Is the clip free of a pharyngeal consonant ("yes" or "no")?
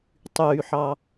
no